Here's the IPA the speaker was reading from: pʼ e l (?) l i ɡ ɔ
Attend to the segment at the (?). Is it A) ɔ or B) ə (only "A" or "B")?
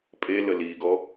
B